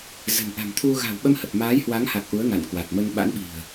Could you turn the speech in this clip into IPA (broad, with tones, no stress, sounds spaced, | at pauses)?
z ə̤˨˩ n ʔ a̤˨˩ m t̪ʰ u˧ ɣ a̤˨˩ w ɓ ə˧ m h ə˨˩ p̚ m aː˨˦ j h w a˨˦ ŋ h a˨˩ k̚ ʔ u˨˦ ə̯ ŋ a̰˧˨ n k w a˨˩ t̚ m ə˧ n ɓ a̰˧˥ n ɓ i̤˨˩ ə̯